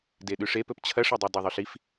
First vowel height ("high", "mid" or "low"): mid